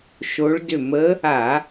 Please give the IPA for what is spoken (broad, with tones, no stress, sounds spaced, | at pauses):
ʃ o˧˥ ɭ d ʏ˥˨ m ə˧˥ | a˧˩˧